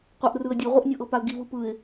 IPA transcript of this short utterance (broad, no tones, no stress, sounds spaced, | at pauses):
qʷ ə ʔ r ɯ ə̯ dʲ ə ɪ̯ ʁʷ ə ʔ nʲ ɤ ʔ ɤ p a ə̯ ɡ i v ɯ p ɯ ɪ̯